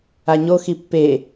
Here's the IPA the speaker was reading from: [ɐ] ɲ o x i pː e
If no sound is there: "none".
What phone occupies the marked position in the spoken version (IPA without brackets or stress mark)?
a